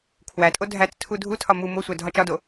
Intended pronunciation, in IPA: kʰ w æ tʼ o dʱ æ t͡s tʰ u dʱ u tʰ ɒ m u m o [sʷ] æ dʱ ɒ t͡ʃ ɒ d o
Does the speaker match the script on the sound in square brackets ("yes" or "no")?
yes